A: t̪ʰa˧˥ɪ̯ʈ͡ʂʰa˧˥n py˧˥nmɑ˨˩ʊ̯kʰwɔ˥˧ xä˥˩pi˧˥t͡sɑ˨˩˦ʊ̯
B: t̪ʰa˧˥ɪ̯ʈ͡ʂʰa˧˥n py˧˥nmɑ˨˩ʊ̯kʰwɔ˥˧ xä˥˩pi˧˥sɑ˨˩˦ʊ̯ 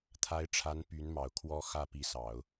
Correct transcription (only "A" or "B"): B